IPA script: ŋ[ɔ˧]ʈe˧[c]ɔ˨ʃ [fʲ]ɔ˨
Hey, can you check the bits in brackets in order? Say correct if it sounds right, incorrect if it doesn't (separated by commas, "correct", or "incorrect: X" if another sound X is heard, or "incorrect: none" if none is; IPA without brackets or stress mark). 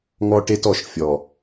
correct, incorrect: t, correct